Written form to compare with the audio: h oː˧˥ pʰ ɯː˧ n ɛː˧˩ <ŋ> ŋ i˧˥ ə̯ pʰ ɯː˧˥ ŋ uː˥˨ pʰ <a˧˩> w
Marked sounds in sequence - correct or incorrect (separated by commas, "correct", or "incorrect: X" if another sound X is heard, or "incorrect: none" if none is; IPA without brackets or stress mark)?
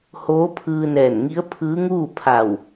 incorrect: n, correct